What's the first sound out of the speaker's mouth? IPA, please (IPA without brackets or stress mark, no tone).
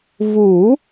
v